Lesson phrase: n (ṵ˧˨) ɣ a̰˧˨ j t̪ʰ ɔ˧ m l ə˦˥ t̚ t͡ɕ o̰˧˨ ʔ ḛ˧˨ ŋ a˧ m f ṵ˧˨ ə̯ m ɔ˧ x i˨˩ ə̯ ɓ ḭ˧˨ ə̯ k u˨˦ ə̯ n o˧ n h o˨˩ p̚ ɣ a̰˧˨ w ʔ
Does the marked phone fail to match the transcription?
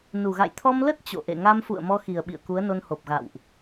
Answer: yes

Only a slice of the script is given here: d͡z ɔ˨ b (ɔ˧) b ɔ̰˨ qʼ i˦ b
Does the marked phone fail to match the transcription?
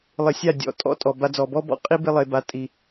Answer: yes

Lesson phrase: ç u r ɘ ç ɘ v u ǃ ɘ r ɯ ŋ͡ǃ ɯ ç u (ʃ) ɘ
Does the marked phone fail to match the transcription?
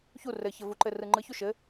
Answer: no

